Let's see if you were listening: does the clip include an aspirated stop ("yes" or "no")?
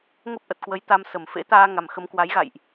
no